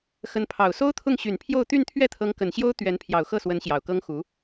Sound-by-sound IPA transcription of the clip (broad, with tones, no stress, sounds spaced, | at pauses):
x ə˧˥ n pʰ ɑ˨˩ ʊ̯ s o˥ ʊ̯ t̪ʰ ʊ˥˩ ŋ ɕ y˨˩ n pʰ j o˥˧ ʊ̯ t̪ y˥˧ n t̪ʰ ɥ ɛ˥˩ t̪ʰ ɤ˧˥ ŋ k ə˨˩ n ɕ j o˥ ʊ̯ t̪ ɥ ɛ˧˥ n pʰ j ɑ˨˩ ʊ̯ x ɤ˥˩ s w ə˧˥ n ɕ j ɑ˨˩ ʊ̯ k ɤ˥ ŋ x u˧˥